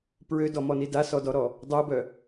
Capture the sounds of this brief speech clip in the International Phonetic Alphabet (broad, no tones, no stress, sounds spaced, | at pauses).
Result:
p ɹ ø d ɔ m ɔ n i d a s ɔ d ɔ ɾ ɔ | dˤ o b œ